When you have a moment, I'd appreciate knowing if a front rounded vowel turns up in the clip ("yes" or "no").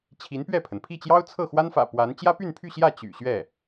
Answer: yes